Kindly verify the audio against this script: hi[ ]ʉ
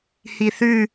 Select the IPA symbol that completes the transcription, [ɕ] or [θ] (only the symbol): θ